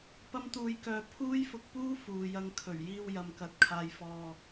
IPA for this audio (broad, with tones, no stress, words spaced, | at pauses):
pɐ˥mt̪uː˧jkœː˧ pʰuː˥jfʊ˧k̚puː˥ fuː˨jɐ˧ŋkʰɵ˨˩ɥ jiː˧wjɐ˨m kɐ˨˥t̚kʰaː˧jfɔː˧